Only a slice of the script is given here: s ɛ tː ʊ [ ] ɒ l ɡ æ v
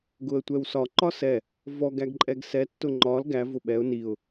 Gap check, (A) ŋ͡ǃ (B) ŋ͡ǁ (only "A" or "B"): A